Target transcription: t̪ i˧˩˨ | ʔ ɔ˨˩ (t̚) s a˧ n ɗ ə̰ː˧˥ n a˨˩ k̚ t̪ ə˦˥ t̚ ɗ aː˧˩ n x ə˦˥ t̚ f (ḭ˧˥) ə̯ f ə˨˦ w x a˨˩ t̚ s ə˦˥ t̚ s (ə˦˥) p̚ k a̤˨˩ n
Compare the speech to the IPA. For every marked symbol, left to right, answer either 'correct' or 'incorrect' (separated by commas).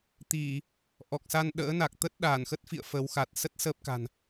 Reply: incorrect, incorrect, correct